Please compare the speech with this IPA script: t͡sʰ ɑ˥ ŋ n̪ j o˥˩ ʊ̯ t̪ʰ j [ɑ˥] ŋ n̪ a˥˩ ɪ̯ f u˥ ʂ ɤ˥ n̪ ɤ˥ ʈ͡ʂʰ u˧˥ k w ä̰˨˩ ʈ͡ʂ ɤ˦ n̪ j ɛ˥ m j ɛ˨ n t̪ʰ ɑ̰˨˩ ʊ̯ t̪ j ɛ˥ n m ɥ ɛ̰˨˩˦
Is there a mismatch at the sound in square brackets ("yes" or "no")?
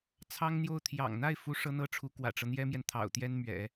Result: yes